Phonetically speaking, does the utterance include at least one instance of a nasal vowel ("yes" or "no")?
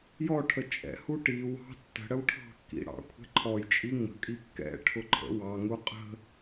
no